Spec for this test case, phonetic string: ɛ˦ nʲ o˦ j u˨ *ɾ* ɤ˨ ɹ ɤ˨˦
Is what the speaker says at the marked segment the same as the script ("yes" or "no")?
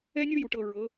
no